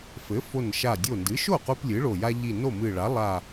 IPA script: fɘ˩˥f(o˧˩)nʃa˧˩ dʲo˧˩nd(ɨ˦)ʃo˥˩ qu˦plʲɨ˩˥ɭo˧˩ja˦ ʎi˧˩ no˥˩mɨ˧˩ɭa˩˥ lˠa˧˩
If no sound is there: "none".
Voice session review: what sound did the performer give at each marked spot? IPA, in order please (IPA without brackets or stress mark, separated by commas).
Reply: o˧˩, ɨ˩˥